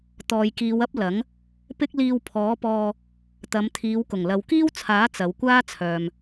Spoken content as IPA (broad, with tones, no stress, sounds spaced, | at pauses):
t̪ ɔː˨ j k iː˨˧ w ɐ˥ p̚ l ɐ˨˥ ŋ | p ɪ˥ k̚ l iː˧ w pʰ ɔː˨˥ p ɔː˧ | t̪ ɐ˨˧ m t̪ʰ iː˨˧ w k ʊ˨˩ ŋ l ɐ˨ w k iː˥ w t͡sʰ aː˨˥ t͡s ɐ˨˧ w kʷ aː˥ t͡sʰ œː˨ m